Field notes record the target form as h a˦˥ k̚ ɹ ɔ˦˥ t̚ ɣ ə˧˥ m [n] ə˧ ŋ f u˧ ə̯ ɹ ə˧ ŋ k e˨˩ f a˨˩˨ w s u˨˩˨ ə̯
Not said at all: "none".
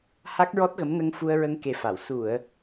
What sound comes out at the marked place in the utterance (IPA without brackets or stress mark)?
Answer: n